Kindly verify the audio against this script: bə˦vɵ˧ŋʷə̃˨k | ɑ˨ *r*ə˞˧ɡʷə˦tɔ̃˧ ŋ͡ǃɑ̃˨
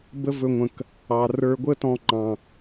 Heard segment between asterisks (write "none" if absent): r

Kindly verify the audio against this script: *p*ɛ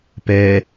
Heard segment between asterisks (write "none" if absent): p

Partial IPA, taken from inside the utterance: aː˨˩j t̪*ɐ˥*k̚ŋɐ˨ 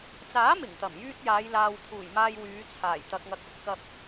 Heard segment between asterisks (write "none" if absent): ɐ˨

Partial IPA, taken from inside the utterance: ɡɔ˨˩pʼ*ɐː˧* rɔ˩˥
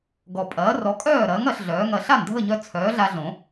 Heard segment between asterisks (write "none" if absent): ɐː˩˥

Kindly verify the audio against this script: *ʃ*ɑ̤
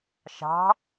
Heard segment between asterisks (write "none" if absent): ʃ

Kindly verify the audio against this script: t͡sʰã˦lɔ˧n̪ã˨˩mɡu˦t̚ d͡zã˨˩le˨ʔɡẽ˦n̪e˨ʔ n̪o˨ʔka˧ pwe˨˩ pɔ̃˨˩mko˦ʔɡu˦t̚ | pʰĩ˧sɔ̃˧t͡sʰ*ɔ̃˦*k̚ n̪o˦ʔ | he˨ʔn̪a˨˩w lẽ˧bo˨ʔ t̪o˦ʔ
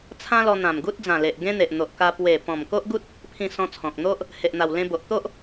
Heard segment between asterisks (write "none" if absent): ɔ̃˨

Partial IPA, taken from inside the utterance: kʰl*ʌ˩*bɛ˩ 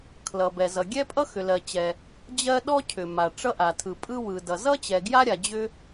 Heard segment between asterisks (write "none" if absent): ʌ˩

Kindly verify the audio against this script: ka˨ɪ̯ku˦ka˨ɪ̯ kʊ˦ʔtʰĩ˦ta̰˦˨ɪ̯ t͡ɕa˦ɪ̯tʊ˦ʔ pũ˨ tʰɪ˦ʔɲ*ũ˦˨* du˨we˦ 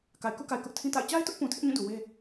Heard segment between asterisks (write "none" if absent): ũ˦˨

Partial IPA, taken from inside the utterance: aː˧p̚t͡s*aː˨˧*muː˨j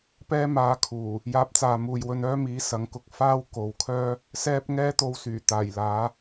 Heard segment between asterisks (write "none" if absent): aː˨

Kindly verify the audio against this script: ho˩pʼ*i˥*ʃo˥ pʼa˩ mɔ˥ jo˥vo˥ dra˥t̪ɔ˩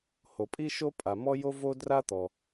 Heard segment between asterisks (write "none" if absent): i˥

